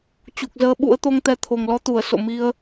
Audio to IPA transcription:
t͡ɕu˨˩k̚zəː˧ɓṵ˧˥ə̯ t̪o˧ŋt̪ɛ˨˦ t̪ʰo˨˩ŋlɔ˨˦t̪u˧˩ə̯ so̰˧˨mi˧ə̯

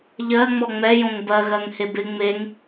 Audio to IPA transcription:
ʎɜ ŋ͡mɔŋ͡mɛjõŋ bɜɣɜŋ hebɪ ŋ͡meŋ

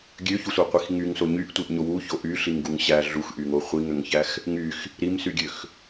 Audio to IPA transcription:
ɡʲøçusʷæqʷix ŋyŋso ɲyʔtʷiʔɲo wuço ʔyɬiŋɡuŋ ɕæ ɮuxʔyŋo χʷiŋøŋçæx | ŋyx | ɾimsyɡʲøx

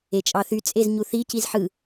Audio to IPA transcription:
et͡ʃʼɑθy t͡sʼezɲuθi cizħɯ

